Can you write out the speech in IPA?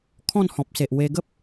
kʰɔ̃˥˧nhɔ̃˨p̚se˨ʔ we˧ɡə˦p̚

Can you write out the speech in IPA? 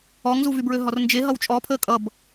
ɔŋzuvybɹø ɦɔrnd͡ʒe ɦʌwt͡ʃʼɔpʰəː kʼʌb

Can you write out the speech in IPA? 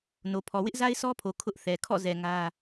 no˨pʰɔ˨ wɪ˦ʔza˦ɪ̯sʰɔ˦pʰo˨ kʰʊ˦ʔθɛ˨ kʰɔ̰˦˨zɛ˨ ŋä˦

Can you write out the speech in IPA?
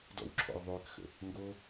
dɔ̰wǁʰɔ̰jðˤʏːkxə̰ | ŋɡo

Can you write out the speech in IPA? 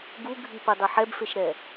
ɡuɡʱipɘdˤɐ ħɛbfeʃɾɛ

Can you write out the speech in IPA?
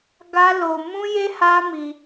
ɡa˦lo˧ mũ˦je˦ ha˦mi˧

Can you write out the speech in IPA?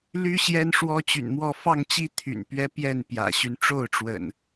ly˦ ɕjɛ˦nʂwɔ˦t͡ɕy̰˨˩nmwɔ˥˨ fɑ˥˨ŋt͡ɕi˦ t̪ʰy̰˨˩npɥɛ˦pjɛ˥˨n pjä̰˨˩ɕy˦n ʈ͡ʂo˥˨ʊ̯ʈ͡ʂwə̰˨˩n

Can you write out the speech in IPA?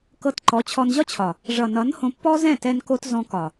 kɤ˧t ǃɔ˨˦t͡ɕʰɔ˧n ʑɒ˦t͡ɕʰɒ˨ | ʐʌ˨nʌ˨˦n hõ˧pːɔ˦ zɛ̃˦˨tɛ˧nko˧t zɔ̃˧kɒ˨

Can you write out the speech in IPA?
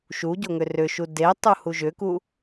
ʃuɟoŋʏ rʏʃu de tˤuhuʒʏku

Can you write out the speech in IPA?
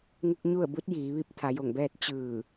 ŋu˧k̚ɲu˥˨ə̯bu˧˥t̚ jiː˩˧ʋi˧˥p̚ t̪ʰa˩˧jo˧˩ŋbɛː˥˨t̚ t͡ɕɯː˧˩

